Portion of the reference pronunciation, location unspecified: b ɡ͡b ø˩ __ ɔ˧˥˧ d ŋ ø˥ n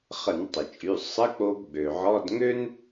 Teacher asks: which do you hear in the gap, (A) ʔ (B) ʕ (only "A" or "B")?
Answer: B